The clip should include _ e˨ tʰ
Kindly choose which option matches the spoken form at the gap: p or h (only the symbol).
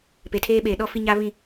p